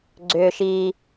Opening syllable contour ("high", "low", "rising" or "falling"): low